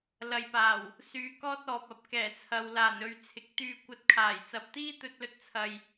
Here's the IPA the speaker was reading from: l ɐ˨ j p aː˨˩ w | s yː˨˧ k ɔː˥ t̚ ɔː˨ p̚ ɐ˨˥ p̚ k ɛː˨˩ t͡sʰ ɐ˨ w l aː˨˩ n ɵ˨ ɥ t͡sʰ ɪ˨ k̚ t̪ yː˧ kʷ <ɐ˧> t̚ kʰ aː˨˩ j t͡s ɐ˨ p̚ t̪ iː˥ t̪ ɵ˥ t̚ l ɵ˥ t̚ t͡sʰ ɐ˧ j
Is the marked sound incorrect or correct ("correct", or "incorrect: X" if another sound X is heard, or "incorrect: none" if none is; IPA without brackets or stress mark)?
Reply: correct